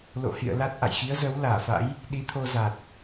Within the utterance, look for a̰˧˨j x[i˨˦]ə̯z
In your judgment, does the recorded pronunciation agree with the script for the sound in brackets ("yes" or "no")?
yes